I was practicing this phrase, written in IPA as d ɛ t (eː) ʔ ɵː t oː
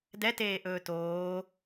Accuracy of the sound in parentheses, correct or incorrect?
correct